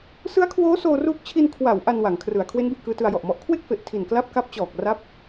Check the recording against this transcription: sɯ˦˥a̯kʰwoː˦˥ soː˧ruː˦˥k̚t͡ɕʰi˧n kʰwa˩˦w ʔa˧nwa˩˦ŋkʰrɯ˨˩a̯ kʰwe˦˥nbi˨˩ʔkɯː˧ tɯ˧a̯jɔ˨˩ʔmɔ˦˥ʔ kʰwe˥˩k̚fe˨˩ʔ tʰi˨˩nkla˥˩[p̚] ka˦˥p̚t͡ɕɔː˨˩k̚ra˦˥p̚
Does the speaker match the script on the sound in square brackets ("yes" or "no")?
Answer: yes